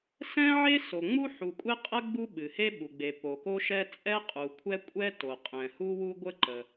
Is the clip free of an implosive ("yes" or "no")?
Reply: no